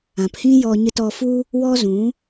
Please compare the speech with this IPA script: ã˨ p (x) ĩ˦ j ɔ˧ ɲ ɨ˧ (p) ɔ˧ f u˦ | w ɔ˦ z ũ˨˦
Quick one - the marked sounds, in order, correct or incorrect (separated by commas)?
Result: incorrect, incorrect